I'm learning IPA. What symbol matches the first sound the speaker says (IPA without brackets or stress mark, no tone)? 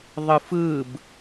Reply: ðˤ